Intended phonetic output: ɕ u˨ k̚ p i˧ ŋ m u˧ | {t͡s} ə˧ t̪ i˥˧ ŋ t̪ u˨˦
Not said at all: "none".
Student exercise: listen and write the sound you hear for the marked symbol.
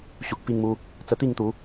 t͡s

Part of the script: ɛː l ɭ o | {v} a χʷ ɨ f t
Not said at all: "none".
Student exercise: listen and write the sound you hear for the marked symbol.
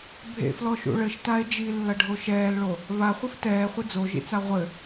β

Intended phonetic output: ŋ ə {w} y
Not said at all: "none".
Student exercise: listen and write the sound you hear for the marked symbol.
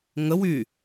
w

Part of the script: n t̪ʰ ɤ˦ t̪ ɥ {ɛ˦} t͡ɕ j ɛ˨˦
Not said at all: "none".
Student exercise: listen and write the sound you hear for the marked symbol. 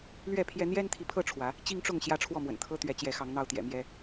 ɛ˨˦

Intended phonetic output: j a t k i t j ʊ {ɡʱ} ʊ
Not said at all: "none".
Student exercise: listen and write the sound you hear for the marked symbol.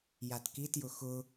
x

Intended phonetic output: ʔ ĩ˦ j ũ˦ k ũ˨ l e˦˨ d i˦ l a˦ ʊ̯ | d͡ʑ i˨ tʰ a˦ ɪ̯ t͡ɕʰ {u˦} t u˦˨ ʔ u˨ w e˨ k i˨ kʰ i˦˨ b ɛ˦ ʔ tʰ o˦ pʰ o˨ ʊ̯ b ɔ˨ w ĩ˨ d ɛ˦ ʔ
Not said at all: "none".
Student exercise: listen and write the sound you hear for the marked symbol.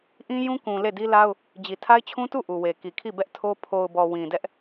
ũ˦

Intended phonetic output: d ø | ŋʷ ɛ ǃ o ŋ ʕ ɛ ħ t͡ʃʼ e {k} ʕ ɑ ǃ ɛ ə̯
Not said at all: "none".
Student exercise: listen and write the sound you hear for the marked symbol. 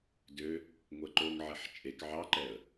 k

